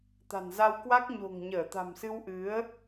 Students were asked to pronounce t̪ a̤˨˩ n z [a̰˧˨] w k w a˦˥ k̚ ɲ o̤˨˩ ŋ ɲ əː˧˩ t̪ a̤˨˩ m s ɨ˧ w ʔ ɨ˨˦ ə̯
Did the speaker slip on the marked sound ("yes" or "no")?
yes